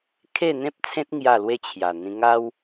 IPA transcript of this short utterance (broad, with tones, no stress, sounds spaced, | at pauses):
kʰ e˥˧ n̪ ẽ˦ p̚ t͡sʰ ẽ˦ t̚ ŋ j a˥˧ l w e˥˧ t͡ɕʰ j a˨˩ n̪ ĩ˧ ŋ a˦ w